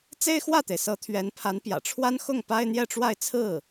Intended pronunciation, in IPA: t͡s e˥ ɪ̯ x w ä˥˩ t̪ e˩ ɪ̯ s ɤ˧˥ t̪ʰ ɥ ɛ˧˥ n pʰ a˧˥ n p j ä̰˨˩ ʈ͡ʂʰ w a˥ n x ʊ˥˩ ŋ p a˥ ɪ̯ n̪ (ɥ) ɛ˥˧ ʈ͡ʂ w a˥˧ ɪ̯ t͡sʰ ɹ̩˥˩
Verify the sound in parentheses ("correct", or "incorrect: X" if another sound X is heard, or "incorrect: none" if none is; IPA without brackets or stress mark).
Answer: incorrect: j